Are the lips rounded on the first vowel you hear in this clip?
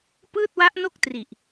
no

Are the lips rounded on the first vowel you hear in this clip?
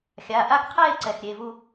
no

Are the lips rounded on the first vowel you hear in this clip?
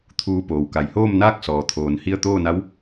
yes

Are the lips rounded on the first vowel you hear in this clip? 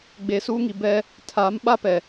no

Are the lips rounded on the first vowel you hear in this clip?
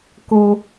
yes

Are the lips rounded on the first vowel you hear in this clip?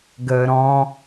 no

